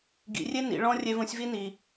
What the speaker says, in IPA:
ɡḭ˩˧rʲe˥nḭ˩˧ ɭɔ̃˥ rʲe˧vũ˧sʲvi˥ni˩

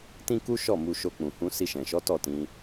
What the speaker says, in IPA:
tĩ˦ku˦ʃɔ˦˨ mu˧ʃo˧k͡pũ˨hũ˧ si˧ʃɛ̃˨ʃɔ˨˦ tɔ˦˨tĩ˧

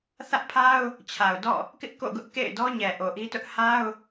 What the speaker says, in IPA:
θä˦ʔpʰa˦ʊ̯ | t͡ɕʰa˨ʊ̯dɔ̰˦˨ | kɪ˦ʔko̰˦˨ɡʊ˦ʔ kḛ˦˨ɪ̯dɔ˦ɲɛ˨ ʔo˨ʔi˦tʊ˦ʔ ha˦ʊ̯

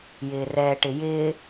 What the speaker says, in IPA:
jɪːrɛːʈɪjɪː

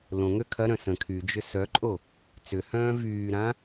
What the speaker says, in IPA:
lõŋø kʰɐɾœ̃ sə̃ kʰyd͡ʒʏ sœǃʼo | t͡sʏhœ̃ː vyːɾã

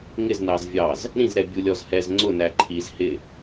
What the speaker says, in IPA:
ŋɪznɑz vʲɑz | ɾĩzɾɛ bʲulʲɔzhɛz ŋ͡ǀʊ næǃʰiz hɪ

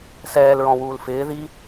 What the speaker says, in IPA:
sɛːlɹɔ̃wuːl fɪː ði

